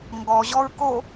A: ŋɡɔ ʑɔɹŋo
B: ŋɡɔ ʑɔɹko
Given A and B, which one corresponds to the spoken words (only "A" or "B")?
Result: B